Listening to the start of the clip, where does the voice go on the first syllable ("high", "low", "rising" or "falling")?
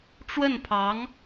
falling